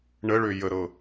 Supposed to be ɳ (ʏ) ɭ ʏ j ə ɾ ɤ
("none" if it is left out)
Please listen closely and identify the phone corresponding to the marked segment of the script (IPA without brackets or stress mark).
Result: ə